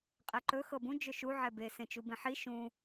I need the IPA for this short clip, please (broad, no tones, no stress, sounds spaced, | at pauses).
qʼ ɛ ǃ ɵ x ɤ b ũ d͡ʒ ɵ ʃ u ʕ ɛ b e s ẽ t͡ʃ u b ẽ ħ i ʃ ũ